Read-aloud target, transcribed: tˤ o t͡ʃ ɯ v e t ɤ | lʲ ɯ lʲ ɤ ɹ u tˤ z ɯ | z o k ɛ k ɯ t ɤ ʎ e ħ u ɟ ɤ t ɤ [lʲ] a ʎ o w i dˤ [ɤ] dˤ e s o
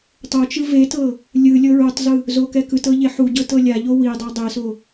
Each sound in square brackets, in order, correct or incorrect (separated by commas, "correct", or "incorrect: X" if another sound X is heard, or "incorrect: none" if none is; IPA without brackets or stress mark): correct, correct